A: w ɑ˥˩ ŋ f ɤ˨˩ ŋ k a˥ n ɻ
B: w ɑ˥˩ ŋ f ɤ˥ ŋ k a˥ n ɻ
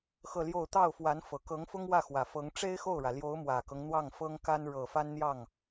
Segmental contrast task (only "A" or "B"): B